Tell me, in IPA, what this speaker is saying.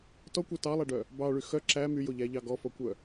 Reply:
t ɔ kʷ æ t ɑ lˠ æ ɖ œ | b ɑ ɭ y x œ ǁ æ m y j o ʎ æ ʎ ɑ ɡ ɔ f ɔ kʷ œ

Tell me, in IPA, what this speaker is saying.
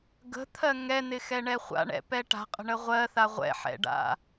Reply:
ɡ ə̤ t̪ʰ ɜ ŋ ɛ n̪ ɪ x ɛ ɳ ɛ χʷ a̰ ɳ ɛ̰ p ɛ ʈ a̤ qʼ ə̤ ɳ ə ʁʷ ɜ θ a ʁʷ ɛ̰ ħ ɛ̰ ɖ a̰

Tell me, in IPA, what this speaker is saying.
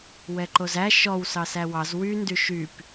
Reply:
w ɛ ǃ o z æ ʃ ɔ w s ɑ s æ w ɑ z w y n d y ʃ y p

